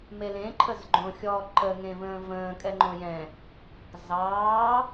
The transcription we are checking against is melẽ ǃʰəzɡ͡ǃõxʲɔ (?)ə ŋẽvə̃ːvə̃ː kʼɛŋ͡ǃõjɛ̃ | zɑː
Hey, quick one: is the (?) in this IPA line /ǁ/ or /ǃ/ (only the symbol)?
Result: ǃ